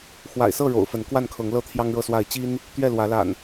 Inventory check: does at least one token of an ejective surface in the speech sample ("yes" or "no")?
no